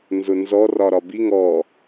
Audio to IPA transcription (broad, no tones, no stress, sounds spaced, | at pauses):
n z ʊ n z ɔ r ɒ ɾ ɒ b i ŋ ɔ